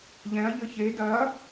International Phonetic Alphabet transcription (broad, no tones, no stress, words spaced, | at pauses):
ʎɛ̃ɐ̯ ʎɘçe dɐ